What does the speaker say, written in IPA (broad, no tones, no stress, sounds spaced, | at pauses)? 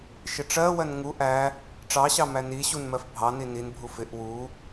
ʃ ɪ ʈ͡ʂ ɜ w ɜ n ŋ u ʔ æ | ʈ͡ʂ ɑ ɕ ɑ m æ n i ɕ u n m ɜ f bʱ ɑ n i n i n bʱ u f ɪ ʔ w u